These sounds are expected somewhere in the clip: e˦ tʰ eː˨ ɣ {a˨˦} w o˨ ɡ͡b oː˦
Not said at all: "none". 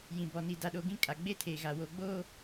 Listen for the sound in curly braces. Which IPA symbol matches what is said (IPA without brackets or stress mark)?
a˨